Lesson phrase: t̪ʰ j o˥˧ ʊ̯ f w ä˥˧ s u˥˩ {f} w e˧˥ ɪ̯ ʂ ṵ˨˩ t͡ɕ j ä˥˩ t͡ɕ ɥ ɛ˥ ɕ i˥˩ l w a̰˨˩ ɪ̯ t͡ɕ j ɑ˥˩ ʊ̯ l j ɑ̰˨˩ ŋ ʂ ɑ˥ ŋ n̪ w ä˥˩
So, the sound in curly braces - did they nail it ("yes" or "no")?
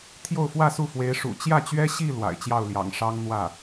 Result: yes